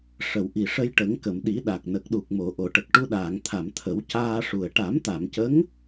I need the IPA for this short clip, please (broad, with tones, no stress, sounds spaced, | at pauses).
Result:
ʂ ə˨˩˨ w ʔ i˨˩ ʂ ə˧ j ʈ ə˨˩˦ ŋ k ə˨˩˨ m ɗ i˨˩˦ ɗ a˨˩ k̚ n ə˨˩ k̚ ɗ u˨˩ k̚ m o˨˩˨ ʔ o˨˩˨ ʈ ə˨˩ k̚ ʈ u˧ ɗ aː˨˩˨ ŋ t̪ʰ a˨˩˨ m t̪ʰ ə˨˩˦ w c aː˧ ʂ u˨˩ ə̯ ʈ a˨˩˦ m t̪ a˨˩˨ m c ə˧˥ ŋ